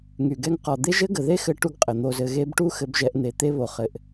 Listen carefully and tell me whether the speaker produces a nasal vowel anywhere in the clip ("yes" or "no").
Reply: no